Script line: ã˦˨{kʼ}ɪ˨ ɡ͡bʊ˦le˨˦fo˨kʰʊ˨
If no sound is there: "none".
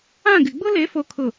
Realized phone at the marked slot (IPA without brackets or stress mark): ɡ